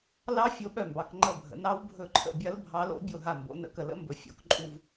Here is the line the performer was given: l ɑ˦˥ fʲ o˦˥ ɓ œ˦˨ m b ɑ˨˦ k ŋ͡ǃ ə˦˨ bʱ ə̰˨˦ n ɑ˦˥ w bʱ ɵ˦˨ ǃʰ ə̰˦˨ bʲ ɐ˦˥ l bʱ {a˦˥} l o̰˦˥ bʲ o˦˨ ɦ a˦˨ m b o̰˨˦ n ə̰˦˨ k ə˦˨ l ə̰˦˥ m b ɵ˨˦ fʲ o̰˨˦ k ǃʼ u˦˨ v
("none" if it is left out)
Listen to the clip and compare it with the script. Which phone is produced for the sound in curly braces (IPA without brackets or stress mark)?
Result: ɑ˦˥